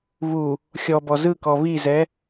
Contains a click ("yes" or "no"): no